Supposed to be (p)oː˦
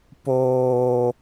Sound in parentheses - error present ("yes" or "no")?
no